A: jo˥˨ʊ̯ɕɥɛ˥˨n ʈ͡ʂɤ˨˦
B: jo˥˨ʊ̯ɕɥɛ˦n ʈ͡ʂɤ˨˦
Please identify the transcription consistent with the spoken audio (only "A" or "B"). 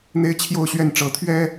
A